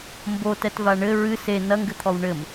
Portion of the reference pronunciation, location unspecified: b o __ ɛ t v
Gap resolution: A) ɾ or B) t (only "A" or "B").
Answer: B